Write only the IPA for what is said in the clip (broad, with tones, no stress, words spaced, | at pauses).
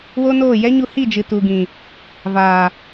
wo˦noː˦˨ jɛ˦ɲu˧hi˦˨d͡ʒɨ˨ tu˨ɡĩ˨ | vaː˨